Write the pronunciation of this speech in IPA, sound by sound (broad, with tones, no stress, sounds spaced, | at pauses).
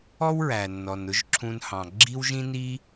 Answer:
ɔ˥ w ɹ æ˩ nː ɔ˩ n ʊ˥ ʒ ǁʰ ũ˧ n h ɑ̃˩ ɡ͡ǁ i˥ w ʒ ĩ˥ n i˥